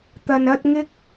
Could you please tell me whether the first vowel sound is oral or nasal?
oral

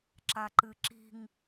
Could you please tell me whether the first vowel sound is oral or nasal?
oral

